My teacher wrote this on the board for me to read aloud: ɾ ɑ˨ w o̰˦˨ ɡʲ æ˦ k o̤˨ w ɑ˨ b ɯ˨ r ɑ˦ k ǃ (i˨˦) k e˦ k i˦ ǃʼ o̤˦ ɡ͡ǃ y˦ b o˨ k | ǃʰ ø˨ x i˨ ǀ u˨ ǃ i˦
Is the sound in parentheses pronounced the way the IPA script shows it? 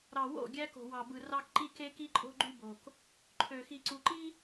no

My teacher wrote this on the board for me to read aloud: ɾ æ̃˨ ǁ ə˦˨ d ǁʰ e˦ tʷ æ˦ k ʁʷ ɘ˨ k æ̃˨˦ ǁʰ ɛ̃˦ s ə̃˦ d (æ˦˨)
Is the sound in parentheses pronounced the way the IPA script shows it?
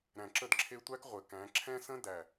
yes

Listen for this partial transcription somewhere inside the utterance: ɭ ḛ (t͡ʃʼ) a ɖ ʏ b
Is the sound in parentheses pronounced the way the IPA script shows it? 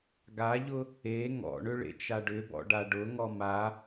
no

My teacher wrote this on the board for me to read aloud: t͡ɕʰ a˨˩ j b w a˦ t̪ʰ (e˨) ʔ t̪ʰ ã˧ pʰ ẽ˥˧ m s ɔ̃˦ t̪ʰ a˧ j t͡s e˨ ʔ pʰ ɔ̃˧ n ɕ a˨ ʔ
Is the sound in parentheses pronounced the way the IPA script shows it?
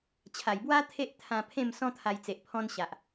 no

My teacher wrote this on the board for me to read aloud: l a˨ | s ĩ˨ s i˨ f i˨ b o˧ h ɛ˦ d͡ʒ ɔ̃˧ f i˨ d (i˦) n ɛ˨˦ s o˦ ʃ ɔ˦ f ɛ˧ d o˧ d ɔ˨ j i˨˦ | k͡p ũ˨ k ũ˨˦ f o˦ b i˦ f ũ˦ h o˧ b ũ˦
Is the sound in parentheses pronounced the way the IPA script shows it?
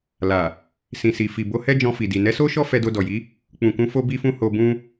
no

